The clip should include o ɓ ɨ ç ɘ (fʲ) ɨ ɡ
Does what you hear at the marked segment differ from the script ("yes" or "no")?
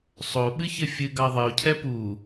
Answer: no